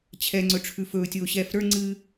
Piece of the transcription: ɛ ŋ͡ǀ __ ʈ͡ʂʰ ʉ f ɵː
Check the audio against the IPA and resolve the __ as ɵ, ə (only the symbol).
ɵ